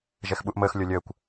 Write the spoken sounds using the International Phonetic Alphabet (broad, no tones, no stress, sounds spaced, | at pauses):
ʒ ɛ x ɓ u ʔ m əː x lʲ o lʲ əː kʷ